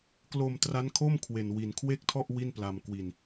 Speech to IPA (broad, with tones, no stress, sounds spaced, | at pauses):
k l o˧ m t r a˦˥ n kʰ o˥˩ m kʰ w e˧ n w i˧ n kʰ w e˥˩ k̚ tʰ ɔ˥˩ ʔ w i˥˩ n p l a˧ m k w i˧ n